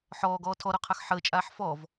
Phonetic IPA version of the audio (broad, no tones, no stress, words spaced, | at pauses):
ħɔːɡɔː tʰɔɾɔqʰax ħəːt͡ʃʼaːħ fɔv